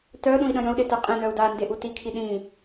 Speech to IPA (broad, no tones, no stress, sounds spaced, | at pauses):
t œ ɗ ũ i̯ ɗ ə̃ j ə̃ u̯ ɗ e t ə qʼ ĩ n œ u̯ d a n d e ʔ u t i kʰ i ɗ ĩ